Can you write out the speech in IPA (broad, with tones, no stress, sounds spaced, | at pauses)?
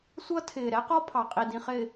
sʷ ʌ˦ tʰ ɪː˨ ɾ ɛ˦ q ɔ˦ pʰ ɑ˨ qʼ i˨ d ĩ˨ χ ɪː˨